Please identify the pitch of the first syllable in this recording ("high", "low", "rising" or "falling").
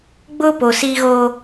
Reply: high